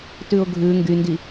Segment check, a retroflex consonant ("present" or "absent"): absent